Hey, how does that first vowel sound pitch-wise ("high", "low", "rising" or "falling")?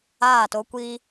falling